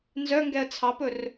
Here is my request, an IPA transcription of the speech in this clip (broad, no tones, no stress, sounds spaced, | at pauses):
n z œ ŋ ɡ ɛ ə̯ t͡sʰ ɑ p ɵ r